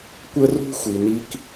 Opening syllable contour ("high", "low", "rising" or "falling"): high